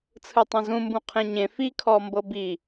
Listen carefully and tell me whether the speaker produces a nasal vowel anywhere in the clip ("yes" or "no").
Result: yes